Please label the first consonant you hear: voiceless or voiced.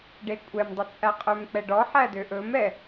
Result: voiced